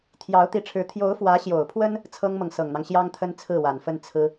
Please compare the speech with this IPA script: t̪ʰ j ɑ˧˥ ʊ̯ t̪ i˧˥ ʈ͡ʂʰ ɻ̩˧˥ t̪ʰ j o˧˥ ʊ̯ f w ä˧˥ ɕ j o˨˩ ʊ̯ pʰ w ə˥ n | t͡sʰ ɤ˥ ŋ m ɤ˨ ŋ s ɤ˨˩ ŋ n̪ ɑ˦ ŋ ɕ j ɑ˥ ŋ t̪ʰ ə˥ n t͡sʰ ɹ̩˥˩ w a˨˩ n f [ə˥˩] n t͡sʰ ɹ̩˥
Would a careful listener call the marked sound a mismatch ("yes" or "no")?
no